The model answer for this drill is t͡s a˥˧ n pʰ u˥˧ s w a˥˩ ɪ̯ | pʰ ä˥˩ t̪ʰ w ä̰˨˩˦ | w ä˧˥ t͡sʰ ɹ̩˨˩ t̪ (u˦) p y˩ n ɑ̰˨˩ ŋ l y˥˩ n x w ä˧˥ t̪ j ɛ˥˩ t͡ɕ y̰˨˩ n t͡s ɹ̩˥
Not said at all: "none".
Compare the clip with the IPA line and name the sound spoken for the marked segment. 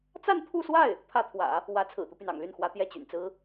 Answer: u˦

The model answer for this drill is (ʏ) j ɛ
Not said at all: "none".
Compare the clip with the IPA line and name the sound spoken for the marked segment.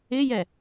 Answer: ɪ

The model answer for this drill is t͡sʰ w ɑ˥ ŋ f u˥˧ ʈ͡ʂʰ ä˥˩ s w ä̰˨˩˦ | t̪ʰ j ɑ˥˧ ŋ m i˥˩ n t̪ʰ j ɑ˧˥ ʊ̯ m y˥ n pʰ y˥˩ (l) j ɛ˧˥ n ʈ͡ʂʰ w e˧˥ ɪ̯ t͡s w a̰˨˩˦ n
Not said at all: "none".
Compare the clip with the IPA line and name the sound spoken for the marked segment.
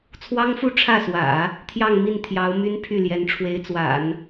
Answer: l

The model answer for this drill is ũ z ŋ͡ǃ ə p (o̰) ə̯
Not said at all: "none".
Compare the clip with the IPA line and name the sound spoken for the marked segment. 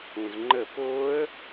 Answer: o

